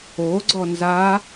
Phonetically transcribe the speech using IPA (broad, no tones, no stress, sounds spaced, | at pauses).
o ɡ͡ǀ ɔ n z a